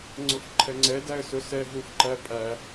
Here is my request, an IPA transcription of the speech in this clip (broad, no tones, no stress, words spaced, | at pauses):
ŋ͡ǀʊfǃʰɛŋ͡ǀɛ dæə̯sʊsɛ ɦufǃæpʼæ